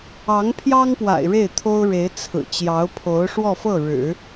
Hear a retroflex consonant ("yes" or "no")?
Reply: yes